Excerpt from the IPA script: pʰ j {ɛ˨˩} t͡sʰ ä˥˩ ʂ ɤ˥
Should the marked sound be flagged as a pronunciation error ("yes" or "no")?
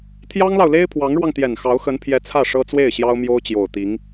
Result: yes